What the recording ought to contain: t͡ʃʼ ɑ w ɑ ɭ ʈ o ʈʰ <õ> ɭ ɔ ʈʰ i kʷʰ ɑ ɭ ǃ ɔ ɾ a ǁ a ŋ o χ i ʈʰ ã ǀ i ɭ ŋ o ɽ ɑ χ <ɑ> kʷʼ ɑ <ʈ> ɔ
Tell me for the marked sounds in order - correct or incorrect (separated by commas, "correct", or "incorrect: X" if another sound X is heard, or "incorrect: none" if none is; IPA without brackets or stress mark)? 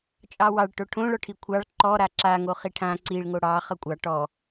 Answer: correct, incorrect: ʌ, correct